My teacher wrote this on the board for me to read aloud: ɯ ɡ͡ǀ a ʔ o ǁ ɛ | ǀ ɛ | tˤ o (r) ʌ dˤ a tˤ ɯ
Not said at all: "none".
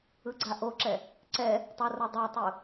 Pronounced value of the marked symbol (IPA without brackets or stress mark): r